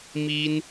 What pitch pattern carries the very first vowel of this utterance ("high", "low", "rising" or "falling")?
high